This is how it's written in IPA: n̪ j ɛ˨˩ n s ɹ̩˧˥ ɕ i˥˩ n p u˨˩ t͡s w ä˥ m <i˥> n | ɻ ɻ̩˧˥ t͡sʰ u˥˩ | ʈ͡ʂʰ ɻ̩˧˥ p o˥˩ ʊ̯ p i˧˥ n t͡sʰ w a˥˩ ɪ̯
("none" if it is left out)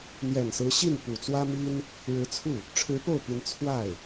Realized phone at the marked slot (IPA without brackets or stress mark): i˥